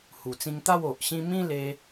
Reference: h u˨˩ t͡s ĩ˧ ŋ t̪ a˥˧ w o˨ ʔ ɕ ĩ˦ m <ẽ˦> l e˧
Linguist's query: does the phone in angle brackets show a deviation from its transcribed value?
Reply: yes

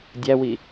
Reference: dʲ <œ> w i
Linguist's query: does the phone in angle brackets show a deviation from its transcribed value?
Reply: yes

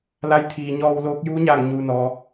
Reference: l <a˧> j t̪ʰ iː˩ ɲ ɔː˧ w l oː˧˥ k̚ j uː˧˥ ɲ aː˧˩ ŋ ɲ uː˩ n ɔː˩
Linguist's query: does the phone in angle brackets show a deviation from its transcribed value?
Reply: no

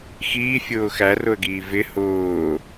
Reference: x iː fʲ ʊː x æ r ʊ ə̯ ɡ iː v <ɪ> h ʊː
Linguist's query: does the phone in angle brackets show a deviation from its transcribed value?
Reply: no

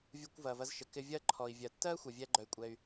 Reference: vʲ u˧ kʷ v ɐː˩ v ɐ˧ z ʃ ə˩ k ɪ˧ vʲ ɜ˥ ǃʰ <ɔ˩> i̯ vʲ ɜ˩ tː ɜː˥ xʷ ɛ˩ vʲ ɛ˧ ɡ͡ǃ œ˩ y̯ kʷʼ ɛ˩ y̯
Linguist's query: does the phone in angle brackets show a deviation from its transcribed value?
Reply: no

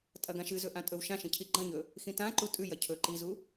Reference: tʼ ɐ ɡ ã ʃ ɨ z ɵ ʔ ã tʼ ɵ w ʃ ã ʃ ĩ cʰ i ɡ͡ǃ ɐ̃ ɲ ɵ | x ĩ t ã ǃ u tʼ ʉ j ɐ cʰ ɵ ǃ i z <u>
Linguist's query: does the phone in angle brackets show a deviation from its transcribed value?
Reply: no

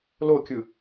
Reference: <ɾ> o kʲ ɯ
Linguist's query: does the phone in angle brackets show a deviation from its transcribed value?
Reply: yes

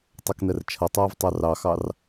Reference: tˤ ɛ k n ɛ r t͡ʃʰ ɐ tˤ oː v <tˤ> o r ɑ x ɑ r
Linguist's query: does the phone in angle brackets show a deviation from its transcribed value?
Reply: no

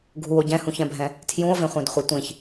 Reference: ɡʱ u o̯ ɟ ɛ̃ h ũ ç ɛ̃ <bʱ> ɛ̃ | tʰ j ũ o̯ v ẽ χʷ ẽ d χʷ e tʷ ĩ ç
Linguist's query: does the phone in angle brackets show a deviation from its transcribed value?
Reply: no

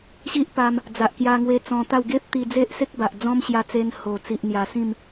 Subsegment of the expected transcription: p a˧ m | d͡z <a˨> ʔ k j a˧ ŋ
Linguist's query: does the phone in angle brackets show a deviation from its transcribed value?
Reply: no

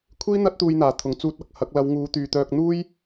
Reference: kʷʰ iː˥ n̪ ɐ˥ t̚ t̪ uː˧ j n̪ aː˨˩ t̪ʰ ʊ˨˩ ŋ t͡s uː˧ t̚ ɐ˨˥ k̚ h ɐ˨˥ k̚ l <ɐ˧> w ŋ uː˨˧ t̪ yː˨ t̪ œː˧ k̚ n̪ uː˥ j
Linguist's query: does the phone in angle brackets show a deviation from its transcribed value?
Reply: yes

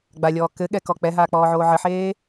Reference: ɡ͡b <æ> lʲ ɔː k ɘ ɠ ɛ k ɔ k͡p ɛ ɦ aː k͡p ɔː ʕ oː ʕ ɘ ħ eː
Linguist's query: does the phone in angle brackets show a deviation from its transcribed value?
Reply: yes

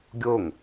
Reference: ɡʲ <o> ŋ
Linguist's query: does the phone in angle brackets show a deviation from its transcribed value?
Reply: no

